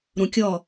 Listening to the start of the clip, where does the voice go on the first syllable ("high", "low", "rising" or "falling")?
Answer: low